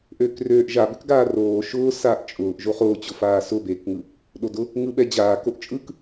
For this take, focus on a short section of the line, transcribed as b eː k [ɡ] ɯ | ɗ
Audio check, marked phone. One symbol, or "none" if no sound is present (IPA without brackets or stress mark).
ŋ